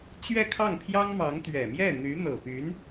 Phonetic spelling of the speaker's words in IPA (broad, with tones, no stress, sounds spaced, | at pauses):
t͡ɕ ɥ ɛ˥˧ kʰ ɑ˥˩ ŋ pʰ j ɑ˥ ŋ m ɑ˧˥ ŋ t̪ ɥ ɛ˨˩ m j ɛ˥˩ n̪ y˧˥ n̪ ɤ˨˩ p y˧˥ n